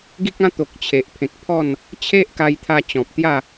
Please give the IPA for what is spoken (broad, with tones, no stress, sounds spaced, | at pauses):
ɡ i˦ k̚ ã˦ t̪ o˨ k̚ t͡ɕʰ e˨ ʔ pʰ ẽ˨ k̚ pʰ ɔ˥˧ n | t͡ɕʰ e˦ ʔ k a˧ j t̪ʰ a˧ t͡ɕ ɔ̃˨ p̚ t̪ j a˥˧